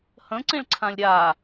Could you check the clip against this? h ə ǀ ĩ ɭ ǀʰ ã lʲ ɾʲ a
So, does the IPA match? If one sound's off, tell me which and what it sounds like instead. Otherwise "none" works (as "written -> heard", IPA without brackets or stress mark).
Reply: ə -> ə̃